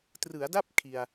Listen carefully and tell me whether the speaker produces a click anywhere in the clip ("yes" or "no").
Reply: no